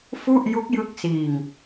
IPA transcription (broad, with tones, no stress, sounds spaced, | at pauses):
f u˥˩ ʔ j u˦˥ k̚ j ɯ˦˥ k̚ s iː˧ ŋ